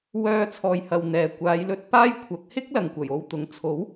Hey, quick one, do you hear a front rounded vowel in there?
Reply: yes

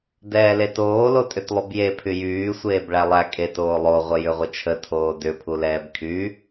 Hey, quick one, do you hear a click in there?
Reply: no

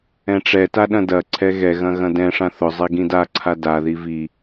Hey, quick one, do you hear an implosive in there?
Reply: yes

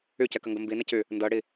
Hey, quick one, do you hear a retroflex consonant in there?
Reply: yes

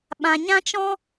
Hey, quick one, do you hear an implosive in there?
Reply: yes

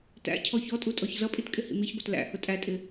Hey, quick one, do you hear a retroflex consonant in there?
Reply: no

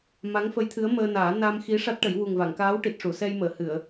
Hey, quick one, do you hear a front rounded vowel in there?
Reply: no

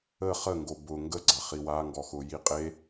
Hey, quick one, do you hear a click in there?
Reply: yes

